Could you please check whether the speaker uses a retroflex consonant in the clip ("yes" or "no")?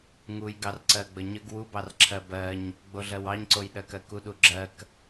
no